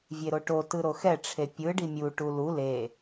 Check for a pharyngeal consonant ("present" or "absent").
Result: absent